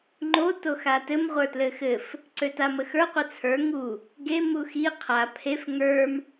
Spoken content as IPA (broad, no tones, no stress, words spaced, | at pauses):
ŋ͡ǃo toxatɘm ʁʷə˞tlɘxɘf | ǀøtaməxə˞ qʷɘt͡sʰə˞ ŋu | ɡe muxi qʰa pʰef ŋə˞m